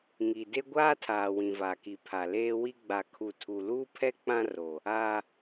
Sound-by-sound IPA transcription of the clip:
ŋi˨de˦ ɡʷaː˦tʰaː˨ wĩ˨va˨ki˨ pʰa˨leː˦wi˦ ɡ͡ba˨kʰu˨ tʰu˨luː˦pʰɛ˦ k͡pã˦ ro˨ | a˦

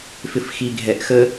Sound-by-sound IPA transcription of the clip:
fɪfxiɡʱɛʔxə

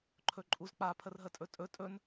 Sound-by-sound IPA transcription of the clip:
ǃʰɵǃʼuzk͡pa pʰərɦətʼɵtʼɵ tʼɵn

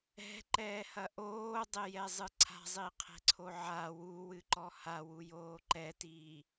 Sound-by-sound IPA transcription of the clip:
ɛ̤ǃɛːhɐ ʔoːdˤejɛzˤɨ ǀʰa̤zˤiqʰɛ̤ǀʰo ʕa wuwɨǃɔ hawujoː ǃɛtiː

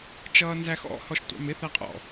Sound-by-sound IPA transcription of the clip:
t͡ʃʌːnzæxɔ̰ hɔʃtʷɑ̰mɪ θæqʼɔ̰

